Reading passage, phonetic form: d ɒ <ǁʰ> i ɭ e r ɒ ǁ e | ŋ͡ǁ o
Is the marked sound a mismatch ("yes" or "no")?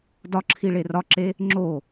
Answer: no